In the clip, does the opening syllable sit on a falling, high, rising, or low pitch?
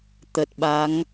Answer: low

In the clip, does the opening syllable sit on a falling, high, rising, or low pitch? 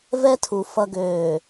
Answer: high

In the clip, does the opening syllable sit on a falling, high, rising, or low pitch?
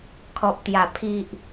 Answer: low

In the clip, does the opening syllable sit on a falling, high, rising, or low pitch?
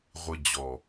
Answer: low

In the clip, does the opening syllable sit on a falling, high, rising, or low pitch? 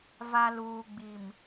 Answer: low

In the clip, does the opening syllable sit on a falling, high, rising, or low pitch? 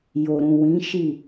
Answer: low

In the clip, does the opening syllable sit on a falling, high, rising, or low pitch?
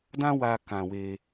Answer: high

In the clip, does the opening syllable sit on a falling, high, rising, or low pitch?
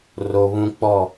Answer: low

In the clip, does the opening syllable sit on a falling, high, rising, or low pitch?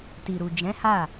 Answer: low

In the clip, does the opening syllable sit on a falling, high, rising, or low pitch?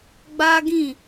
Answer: high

